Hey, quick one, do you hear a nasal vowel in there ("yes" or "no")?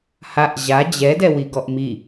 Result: no